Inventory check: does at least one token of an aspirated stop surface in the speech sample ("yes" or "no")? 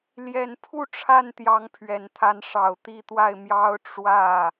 yes